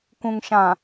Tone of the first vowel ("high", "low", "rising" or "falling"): low